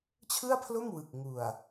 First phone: t͡ɕʰ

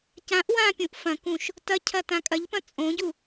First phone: c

